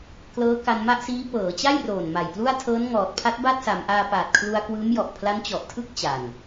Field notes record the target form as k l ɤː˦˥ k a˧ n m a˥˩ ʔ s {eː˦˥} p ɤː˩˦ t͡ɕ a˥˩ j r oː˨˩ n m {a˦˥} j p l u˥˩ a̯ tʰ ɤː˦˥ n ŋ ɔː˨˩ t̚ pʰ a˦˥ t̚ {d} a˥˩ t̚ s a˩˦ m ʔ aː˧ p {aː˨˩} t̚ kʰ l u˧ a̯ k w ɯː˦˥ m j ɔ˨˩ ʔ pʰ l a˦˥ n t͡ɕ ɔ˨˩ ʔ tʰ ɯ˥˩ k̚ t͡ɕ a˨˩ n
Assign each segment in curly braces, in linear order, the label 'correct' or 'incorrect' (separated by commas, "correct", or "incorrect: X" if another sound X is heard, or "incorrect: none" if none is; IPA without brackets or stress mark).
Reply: incorrect: iː˦˥, incorrect: a˨˩, incorrect: b, correct